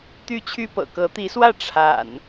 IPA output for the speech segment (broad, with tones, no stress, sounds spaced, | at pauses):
t̪ y˥˨ t͡ɕʰ y˦ p ɤ̰˨˩ k ɤ˨˦ t̪ i˨˦ s w ä˥˨ ʈ͡ʂʰ a̰˨˩ n